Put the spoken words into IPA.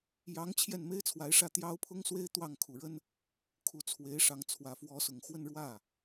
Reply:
j ɑ˧˥ ŋ t͡ɕʰ j ɛ˥˩ n m e˥ ɪ̯ t͡sʰ w a˧˥ ɪ̯ ʂ ä˥˩ t̪ j ɑ˥ ʊ̯ pʰ ʊ˥ ŋ s w e˥ ɪ̯ t̪ w ɑ˥˩ ŋ kʰ u˨˩ ɻ ə˥ n | kʰ u˧˥ t͡sʰ w e˧˥ ɪ̯ ʂ ɑ˧˥ ŋ t͡sʰ w ä˨˩ f w ɔ˧˥ s ʊ˨˩ ŋ x w ə˥˧ n ɻ w ä˥˩

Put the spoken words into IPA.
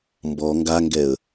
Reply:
m b ɔ ŋ ɡ a ŋ ɡ ɛ ə̯

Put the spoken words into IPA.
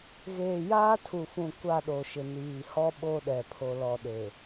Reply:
ɣ eː˨ j aː˦ tʰ u˨ f ũ˨ kʷ a˦˨ ɗ o˨ ʃ ɪ˨ n iː˨ h ɔ˦ ɓ o˦ ɗ ɛ˨ pʰ o˨ l ɔ˨ ɗ e˨

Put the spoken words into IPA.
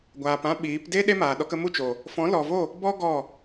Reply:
ɡʷ aː˨ p ã˦ ɓ iː˨˦ p d e˦ ɗ e˦ m aː˨ ɗ ɔ˧ k ə˧ m u˦˨ t͡ʃ oː˨ | f ɔ̃˨˦ l ɔ˨ v o˦˨ | b ɔ˦ ɡ ɔ˦˨

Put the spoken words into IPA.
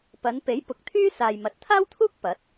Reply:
p ɐ˨˧ n p e˨˥ j p ʊ˨˥ k̚ t̪ʰ yː˥ s aː˨ j m ɐ˨ t̚ t̪ʰ aː˥ w t̪ʰ uː˥ k̚ p ɐ˨˥ t̚

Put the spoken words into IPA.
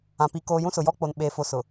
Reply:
ã˨ p i˨ k oː˨ j ũ˦ s ʊ˨ j ɔ˦ k͡p o˨ n ɓ e˨ f o˨ s ʊ˨

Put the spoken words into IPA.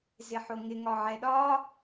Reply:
z ɪ ħ o ŋ ɪ ŋ ɒ ʕ ɛ ɗ ɒ

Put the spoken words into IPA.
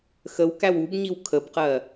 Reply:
x ə w k æ w u b ɲ i w kʰ ə b q ɜ

